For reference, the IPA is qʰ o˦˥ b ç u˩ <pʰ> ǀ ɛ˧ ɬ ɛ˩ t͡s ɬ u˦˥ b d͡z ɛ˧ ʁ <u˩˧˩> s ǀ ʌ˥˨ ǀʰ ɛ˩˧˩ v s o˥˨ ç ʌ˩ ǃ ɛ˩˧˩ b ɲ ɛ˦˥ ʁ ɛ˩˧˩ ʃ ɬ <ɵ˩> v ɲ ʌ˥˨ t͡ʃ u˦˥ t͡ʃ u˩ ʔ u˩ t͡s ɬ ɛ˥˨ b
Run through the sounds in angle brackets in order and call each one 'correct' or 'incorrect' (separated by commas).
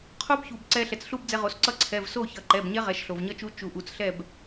incorrect, incorrect, incorrect